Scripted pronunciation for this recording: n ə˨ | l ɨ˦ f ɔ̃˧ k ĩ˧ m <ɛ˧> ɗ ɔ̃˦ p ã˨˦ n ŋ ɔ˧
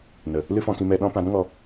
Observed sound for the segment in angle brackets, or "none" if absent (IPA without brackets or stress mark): ɛ˧